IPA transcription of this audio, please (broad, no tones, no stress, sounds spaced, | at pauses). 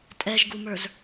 tʼ ɛ ʒ ɡ u m ə˞ z